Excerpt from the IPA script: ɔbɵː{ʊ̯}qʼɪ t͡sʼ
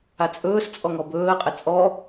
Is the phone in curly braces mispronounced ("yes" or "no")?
yes